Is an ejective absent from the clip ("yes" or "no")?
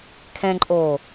no